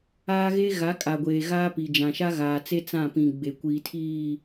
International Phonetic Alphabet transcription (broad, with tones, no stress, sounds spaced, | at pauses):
aː˦ ɣ e˦ ɣ a˨˦ kʼ a˨ ɡʷ eː˨ ɣ aː˦ p i˨ d͡ʒ ã˨ ʃ a˦ ɣ aː˨ t͡s e˦ t͡s ã˦˨ p ĩ˨ ɡ͡b e˨ kʷ iː˨ tʰ iː˦˨